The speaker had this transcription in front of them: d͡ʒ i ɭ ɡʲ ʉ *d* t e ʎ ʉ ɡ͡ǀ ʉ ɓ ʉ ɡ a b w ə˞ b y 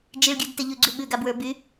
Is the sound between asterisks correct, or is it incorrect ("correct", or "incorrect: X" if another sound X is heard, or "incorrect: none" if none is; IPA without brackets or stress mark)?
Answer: correct